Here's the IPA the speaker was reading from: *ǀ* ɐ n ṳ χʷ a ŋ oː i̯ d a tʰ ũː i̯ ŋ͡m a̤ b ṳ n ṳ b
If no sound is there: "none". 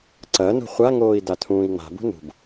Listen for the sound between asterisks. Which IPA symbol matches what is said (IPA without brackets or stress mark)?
ǀ